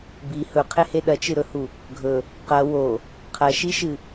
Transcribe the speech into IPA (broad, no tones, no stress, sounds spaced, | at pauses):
b i h ɵ qʰ e h e ɗ ɐ t͡ʃ ɨ ɾ ɵ h u | ɡʱ ɵ | q ɐ w o | qʰ ɐ ʃ i ʃ ɨ